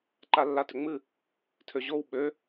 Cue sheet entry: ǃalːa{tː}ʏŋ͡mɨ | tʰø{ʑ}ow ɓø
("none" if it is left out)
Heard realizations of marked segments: t, ʑ

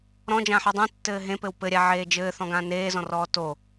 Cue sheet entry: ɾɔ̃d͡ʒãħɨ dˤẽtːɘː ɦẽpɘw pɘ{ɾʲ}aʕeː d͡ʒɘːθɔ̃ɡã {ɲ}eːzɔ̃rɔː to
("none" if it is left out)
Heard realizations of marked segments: ɾʲ, n

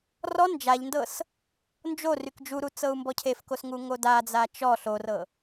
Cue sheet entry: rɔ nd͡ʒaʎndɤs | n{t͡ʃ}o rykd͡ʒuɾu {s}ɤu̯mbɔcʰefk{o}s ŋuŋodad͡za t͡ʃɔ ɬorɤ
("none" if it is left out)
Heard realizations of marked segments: d͡ʒ, t͡s, o

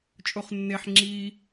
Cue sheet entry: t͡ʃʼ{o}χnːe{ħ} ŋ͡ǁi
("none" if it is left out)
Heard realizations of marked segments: o, ħ

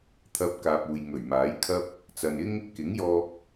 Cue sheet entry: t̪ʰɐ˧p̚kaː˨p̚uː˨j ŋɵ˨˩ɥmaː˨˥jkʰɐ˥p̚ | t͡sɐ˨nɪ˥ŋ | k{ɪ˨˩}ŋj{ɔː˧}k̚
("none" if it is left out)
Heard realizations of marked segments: ɪ˨˥, ɔː˧

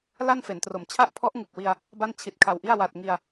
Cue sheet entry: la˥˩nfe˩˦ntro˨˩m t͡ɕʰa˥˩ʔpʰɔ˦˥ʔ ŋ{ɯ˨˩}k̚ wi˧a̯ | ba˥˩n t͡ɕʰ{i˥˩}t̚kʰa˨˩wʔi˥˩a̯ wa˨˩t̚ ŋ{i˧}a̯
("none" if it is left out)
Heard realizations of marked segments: ɯ˨˩, i˨˩, i˧

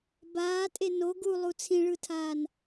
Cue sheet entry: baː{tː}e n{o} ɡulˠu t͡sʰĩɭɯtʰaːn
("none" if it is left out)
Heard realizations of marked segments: tʼ, o

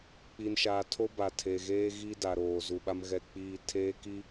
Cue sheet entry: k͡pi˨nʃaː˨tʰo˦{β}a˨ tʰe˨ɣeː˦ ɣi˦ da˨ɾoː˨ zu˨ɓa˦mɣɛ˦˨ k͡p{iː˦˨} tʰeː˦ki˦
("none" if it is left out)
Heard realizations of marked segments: b, iː˦˨

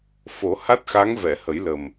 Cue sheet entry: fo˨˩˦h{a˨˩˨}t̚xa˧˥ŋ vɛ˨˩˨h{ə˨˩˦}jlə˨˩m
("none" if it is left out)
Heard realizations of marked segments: a˦˥, ə˨˩˦

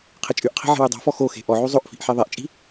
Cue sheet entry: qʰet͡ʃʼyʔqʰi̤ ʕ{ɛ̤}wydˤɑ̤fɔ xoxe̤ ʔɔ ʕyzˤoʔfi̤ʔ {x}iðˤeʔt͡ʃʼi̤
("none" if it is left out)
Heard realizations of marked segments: e̤, ħ

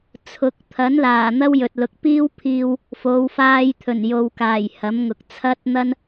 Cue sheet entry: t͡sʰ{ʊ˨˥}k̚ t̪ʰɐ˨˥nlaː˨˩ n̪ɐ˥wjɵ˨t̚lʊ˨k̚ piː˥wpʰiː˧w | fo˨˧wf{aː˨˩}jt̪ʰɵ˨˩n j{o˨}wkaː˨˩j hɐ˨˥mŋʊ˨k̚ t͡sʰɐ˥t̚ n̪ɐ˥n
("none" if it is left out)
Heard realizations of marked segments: ʊ˨˥, aː˧, o˨

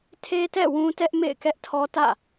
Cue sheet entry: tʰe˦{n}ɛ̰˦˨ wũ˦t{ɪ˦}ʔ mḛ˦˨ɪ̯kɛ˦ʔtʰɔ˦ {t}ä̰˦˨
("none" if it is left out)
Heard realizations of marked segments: t, ɛ˦, t

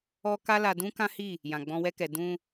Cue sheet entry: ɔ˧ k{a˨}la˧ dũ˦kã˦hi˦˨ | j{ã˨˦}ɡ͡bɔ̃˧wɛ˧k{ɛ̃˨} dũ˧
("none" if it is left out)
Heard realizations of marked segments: a˦, ã˨, ɛ˨

